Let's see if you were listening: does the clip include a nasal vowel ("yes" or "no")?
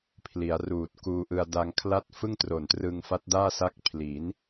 no